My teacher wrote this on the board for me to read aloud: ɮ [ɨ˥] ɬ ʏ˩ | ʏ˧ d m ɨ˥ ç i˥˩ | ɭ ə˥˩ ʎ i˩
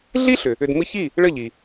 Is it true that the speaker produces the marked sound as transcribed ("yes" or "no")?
no